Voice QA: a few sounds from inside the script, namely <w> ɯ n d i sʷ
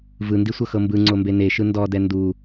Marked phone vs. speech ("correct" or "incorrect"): incorrect